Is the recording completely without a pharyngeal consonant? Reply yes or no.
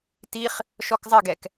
yes